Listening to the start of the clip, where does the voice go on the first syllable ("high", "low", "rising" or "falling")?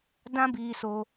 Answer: high